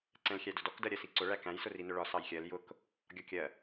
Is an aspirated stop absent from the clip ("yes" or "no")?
yes